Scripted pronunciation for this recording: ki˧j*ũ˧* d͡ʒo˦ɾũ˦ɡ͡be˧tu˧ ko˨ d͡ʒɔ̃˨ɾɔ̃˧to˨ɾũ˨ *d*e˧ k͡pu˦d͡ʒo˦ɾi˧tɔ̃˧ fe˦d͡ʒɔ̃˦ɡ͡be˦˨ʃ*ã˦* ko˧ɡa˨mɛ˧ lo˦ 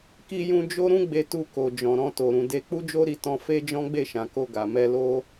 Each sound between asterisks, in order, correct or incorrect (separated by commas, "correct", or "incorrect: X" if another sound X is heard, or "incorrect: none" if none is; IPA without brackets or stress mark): correct, correct, incorrect: ã˨